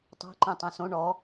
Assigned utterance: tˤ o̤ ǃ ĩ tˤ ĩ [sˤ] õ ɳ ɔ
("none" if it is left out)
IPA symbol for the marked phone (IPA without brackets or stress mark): s